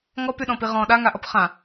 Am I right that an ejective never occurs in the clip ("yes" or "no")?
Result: yes